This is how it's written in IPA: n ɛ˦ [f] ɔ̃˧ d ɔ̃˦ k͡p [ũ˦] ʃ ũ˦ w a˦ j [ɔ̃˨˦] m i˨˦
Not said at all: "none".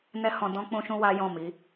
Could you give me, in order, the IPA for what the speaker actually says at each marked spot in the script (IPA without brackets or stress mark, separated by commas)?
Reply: h, ũ˦, ɔ̃˦˨